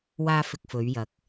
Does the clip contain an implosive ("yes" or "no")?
no